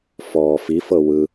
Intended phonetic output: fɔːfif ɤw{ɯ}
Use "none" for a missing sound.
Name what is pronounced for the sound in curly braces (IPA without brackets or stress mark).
ɯ